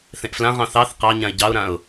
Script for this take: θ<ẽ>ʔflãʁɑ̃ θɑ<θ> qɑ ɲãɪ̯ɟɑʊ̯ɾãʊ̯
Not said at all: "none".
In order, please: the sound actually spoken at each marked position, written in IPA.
ẽ, θ

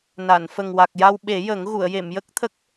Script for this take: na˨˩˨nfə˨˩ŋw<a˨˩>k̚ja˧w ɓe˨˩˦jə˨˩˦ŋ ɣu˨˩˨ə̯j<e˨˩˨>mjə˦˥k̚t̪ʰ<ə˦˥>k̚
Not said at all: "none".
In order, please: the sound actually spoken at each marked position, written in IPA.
a˨˩, e˨˩˨, ə˦˥

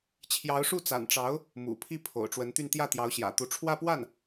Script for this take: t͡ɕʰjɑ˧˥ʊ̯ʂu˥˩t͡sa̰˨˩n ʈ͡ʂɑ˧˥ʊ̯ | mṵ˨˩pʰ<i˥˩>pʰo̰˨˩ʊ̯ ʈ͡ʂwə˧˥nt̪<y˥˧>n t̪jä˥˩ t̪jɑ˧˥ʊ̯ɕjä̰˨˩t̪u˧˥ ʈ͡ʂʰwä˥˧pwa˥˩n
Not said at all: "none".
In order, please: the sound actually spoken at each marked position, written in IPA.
i˥˩, y˥˧

